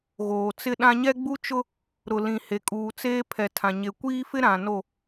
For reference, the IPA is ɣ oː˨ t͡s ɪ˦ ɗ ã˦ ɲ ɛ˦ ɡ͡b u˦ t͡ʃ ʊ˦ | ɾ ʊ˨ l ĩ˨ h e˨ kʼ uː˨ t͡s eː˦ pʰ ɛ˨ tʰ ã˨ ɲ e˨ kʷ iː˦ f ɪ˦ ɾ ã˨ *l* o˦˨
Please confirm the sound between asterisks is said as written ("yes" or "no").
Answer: no